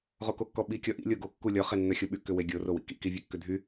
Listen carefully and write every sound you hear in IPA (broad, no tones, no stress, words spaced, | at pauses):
ʁokokːɔɓi kʲɔʔḭ lʲoɡo kːulʲɔ χenːœxʲoɓy kʏweɡʲo rowḭkḭ kivʲɛkːʏdʱy